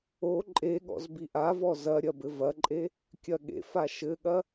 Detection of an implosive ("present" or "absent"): present